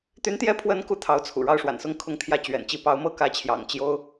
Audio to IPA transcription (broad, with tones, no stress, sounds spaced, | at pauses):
t̪ y˧˥ n t̪ j ɛ˧˥ pʰ w ə˧˥ n k u˧˥ t̪ʰ ɑ˧˥ ʊ̯ t͡sʰ ṵ˨˩ ɻ ɑ˥˩ ʊ̯ ʂ w a̰˨˩ n s ʊ˥ ŋ kʰ ʊ˧˥ ŋ t̪ʰ j ä˧˥ t͡ɕ ɥ ɛ̰˨˩ n t͡ɕ i˥˩ p ɑ˧˥ ʊ̯ m ɤ˥˩ k ä˧˥ t͡ɕʰ j ɑ̰˨˩ ŋ t͡ɕ j o˥ ʊ̯